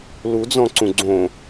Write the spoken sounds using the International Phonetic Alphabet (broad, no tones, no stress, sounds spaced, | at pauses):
l u d͡z ɔ̃ ǀ ũ ɡ͡ǀ õ